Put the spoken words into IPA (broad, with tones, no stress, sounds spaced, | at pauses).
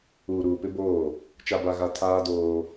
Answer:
uː˨ ɾ uː˨ p ɪ˦ b oː˦˨ | t͡ʃ a˨ b a˨ ɣ a˨ tʰ aː˦ d oː˦